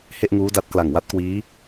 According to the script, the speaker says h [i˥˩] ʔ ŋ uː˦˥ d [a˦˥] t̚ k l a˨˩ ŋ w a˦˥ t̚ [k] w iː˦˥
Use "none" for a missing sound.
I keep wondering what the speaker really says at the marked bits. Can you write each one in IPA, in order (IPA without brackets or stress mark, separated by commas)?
e˥˩, a˦˥, k